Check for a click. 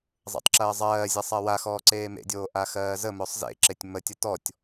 present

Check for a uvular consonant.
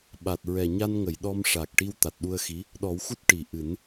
absent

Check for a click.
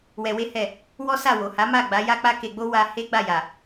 absent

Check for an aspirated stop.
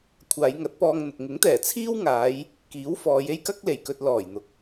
present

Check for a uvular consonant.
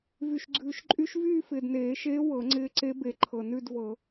absent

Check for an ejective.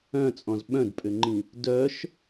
present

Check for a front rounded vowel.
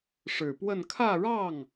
absent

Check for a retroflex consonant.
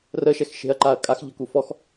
absent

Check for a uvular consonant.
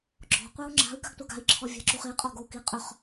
present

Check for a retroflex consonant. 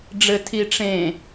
present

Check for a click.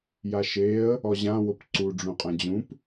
present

